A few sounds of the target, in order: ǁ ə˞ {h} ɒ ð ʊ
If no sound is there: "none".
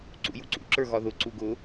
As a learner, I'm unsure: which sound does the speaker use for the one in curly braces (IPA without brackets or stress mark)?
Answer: ɣ